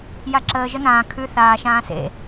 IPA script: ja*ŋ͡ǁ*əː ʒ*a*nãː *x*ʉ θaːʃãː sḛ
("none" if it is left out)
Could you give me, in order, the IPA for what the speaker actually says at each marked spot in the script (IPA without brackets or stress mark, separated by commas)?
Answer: ǁ, ə, kʰ